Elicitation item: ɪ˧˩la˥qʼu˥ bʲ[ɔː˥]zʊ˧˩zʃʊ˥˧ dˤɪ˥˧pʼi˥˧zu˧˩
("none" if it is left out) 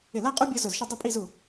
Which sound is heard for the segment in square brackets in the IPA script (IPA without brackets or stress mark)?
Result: ɔ˥